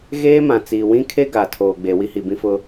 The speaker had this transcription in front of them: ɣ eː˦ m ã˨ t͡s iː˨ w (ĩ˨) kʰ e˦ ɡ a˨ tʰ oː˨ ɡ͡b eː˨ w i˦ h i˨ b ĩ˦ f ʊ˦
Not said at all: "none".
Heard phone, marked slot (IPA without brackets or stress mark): ĩ˦